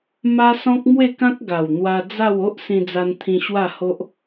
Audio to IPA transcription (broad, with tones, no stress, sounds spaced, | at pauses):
m a˦ s ɔ̃˦ k̚ m w e˥˧ k ã˦ k̚ ɡ a˨˩ w n̪ w a˧ d͡z a˥˧ w o˦ ʔ s ĩ˧ d͡z a˧ n t̪ʰ ĩ˧ ɕ w a˥˧ h o˦ ʔ